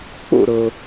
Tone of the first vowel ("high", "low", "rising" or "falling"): falling